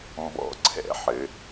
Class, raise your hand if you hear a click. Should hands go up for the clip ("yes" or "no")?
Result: yes